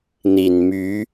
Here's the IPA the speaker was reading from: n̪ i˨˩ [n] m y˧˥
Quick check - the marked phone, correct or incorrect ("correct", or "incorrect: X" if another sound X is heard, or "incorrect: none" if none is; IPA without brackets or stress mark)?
correct